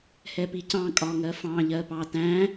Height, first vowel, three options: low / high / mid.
mid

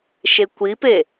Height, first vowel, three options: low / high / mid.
mid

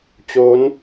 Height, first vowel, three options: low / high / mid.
mid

